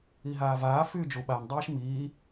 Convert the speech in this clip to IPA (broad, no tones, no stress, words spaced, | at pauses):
iɦaːvaː fyːd͡ʒu ɓan dˤiːʃmiː